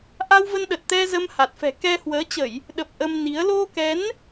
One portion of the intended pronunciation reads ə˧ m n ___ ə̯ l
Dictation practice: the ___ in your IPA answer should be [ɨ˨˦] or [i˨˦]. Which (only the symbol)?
i˨˦